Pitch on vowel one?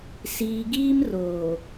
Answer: low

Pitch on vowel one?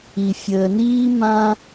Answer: low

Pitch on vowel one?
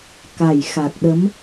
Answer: low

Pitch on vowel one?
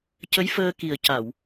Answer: rising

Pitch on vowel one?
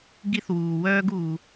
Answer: high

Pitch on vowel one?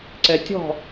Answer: low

